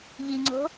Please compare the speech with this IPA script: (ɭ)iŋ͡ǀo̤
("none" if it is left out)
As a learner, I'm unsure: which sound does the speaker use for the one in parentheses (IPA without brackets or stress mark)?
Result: ʎ